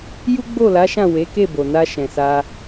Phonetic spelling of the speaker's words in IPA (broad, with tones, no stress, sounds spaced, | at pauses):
j u˦ ɡ͡b o˦˨ l a˨˦ ʃ ã˦˨ w e˨˦ k e˦˨ b o˨ n a˧ ʃ ɛ̃˨ s a˧